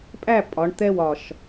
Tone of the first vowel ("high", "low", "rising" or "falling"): falling